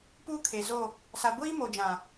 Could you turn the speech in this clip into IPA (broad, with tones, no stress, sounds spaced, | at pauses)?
p uː˦ kʰ e˨ z o˦˨ | s a˨ ɡʷ iː˦ m o˨ d͡ʒ ã˨